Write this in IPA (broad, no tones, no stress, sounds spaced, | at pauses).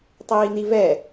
tˤ iː n i v ɛ